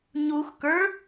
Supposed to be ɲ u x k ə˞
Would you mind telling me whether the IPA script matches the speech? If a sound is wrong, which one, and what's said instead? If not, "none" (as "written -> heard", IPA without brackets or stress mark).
none